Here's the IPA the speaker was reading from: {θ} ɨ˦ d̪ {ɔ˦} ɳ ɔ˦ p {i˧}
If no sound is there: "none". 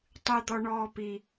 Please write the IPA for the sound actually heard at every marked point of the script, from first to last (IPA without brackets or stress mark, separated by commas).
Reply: tˤ, ɔ˦, i˧